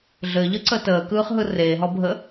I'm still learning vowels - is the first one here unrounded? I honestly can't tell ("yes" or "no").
yes